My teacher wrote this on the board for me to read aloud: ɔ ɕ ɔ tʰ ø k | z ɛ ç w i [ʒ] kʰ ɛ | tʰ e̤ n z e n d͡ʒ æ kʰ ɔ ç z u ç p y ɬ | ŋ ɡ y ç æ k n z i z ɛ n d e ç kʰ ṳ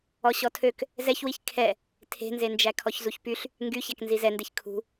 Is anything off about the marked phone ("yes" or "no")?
yes